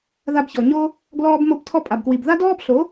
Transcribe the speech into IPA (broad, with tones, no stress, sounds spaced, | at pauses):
ð a˧ b ç ɔ˨ ɲ o˦ | ɡ l ɔː˧ b m o˧ b tʰ ɔ˧ pʼ a˨ b k w i˨ b ð a˦ d ɔː˦ b ɬ o˨˦